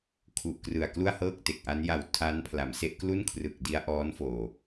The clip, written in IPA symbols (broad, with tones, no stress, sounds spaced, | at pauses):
kʰ u˨˩ ʔ k r ɯ˨˩ a̯ k l u˥˩ a̯ h ɤː˥˩ k̚ t e˨˩ k̚ ʔ a˦˥ n j a˨˩ w tʰ a˦˥ n pʰ l a˩˦ m s e˦˥ ʔ k l u˥˩ n kʰ r ɯ˨˩ k̚ d i˦˥ a̯ ʔ ɔː˦˥ n f oː˨˩